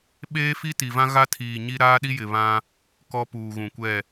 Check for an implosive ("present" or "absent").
present